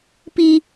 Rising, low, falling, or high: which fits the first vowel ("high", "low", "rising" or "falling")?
high